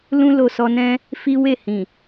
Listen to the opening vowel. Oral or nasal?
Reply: nasal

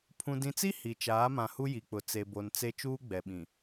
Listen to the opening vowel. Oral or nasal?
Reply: nasal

